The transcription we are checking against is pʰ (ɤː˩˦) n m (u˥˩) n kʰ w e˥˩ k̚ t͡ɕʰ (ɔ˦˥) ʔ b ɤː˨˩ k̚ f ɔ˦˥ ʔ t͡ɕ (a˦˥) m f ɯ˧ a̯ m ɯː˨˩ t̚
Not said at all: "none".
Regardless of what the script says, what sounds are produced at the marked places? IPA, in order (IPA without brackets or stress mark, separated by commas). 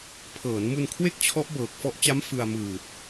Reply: ɤː˩˦, u˧, ɔ˦˥, a˦˥